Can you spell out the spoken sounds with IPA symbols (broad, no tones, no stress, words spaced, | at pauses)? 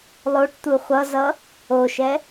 lˠoʈ t̪uχʷʌzʌ | oʃɛ